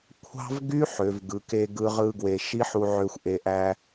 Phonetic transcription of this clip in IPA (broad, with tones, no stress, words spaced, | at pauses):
kʷʰɑ̤˦vɡy˦ ħø˨˦vɡɯ˨˦ke˦ɡɯ˦ ʁɯ˧ɡwe˨ʃi˦ ħu˧ ʕø˧xʷʔe˨ʔæ˧